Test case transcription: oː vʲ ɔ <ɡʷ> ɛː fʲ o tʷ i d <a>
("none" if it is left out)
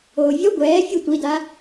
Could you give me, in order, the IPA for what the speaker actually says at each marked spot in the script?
ɡʷ, a

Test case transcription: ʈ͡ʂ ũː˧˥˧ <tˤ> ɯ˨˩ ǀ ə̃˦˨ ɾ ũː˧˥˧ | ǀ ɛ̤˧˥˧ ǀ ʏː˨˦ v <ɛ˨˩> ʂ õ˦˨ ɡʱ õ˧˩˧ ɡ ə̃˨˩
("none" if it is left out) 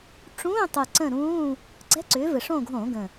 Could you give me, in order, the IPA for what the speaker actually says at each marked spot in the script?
tˤ, ɘ˨˩

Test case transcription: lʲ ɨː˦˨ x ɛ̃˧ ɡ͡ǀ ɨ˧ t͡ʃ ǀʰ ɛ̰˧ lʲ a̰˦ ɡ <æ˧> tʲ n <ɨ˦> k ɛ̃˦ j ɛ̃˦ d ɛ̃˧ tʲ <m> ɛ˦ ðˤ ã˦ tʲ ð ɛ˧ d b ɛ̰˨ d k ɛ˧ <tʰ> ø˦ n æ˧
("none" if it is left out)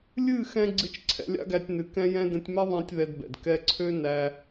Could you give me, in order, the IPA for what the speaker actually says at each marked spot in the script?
æ˧, ɨ˨, m, ǀʰ

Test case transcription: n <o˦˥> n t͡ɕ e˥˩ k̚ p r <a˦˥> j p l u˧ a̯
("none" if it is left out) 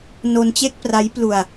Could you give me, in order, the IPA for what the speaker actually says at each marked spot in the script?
o˧, a˦˥

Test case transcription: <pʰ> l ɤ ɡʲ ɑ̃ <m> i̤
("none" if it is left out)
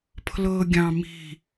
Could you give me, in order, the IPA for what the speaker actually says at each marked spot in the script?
pʰ, m

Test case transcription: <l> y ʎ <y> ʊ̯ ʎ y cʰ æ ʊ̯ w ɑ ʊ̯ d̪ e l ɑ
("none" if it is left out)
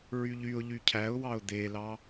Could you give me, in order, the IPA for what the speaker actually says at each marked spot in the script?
ɹ, y

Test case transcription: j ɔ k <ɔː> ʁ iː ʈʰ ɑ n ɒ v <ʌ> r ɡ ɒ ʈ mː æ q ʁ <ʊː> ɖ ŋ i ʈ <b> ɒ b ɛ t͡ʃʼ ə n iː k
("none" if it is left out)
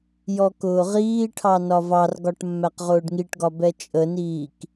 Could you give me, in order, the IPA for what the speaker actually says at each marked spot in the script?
ʊː, ɑ, ʊː, ɡ

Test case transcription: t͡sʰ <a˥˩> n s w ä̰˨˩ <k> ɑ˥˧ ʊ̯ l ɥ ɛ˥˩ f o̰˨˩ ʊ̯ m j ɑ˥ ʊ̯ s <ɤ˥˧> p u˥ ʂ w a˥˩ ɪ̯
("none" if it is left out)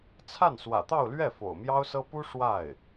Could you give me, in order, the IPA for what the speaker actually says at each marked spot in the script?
a˥˩, t̪, ɤ˥

